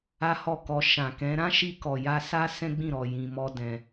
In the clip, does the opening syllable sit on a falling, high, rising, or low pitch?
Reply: high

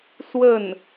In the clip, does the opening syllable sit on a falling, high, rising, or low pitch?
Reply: falling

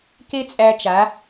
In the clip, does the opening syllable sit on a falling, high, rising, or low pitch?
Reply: high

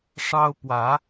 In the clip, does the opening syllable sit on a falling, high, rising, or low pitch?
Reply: high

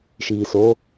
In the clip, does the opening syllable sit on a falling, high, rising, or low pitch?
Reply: low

